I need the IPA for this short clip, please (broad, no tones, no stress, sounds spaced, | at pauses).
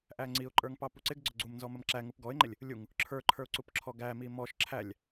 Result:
ʔ æ ŋ͡ǀ i ʊ̯ ǃʼ ə˞ ŋ p ɑ p u ǀ ɪ ɡ ɡ͡ǀ ʊ ɡ͡ǀ u m n z ɔ m ə m ǁ æ ŋ u p ɡ ɔ ɪ̯ ŋ͡ǃ ɪ lʲ | lʲ u ŋ | ǁʰ ə˞ ǃʰ ə˞ ʊ̯ ǀ u p ǁʰ ɔ ɡ æ m i m ɔ ʃ ǁʰ æ lʲ